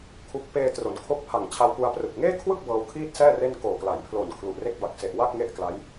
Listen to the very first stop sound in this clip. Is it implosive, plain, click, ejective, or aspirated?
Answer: aspirated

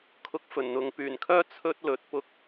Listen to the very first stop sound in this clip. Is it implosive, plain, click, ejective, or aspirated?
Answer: aspirated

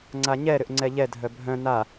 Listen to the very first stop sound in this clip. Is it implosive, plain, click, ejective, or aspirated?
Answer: click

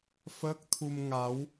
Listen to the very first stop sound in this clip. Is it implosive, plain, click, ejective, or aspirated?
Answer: plain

